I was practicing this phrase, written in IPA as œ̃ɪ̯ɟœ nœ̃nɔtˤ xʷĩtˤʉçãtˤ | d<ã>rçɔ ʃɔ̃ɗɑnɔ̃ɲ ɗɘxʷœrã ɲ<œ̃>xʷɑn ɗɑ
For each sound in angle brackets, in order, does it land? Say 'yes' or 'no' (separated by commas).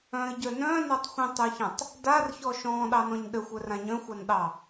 no, yes